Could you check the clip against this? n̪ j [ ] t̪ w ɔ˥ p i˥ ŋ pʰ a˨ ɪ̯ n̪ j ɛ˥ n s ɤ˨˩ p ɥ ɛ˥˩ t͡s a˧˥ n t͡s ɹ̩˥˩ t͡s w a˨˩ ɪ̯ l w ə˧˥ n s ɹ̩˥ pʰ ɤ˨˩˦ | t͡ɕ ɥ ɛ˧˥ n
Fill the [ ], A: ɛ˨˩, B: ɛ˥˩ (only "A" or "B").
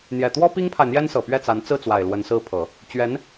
A